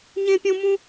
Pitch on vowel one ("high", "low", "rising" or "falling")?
high